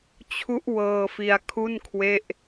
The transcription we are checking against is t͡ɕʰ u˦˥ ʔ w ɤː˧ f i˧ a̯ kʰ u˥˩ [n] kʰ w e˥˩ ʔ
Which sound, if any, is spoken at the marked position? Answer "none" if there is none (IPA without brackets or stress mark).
n